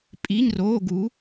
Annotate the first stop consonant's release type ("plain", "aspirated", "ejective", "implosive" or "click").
ejective